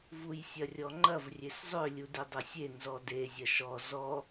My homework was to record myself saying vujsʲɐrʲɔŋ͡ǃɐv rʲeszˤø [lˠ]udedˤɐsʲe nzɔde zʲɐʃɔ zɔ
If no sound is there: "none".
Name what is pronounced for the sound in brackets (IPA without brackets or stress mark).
lʲ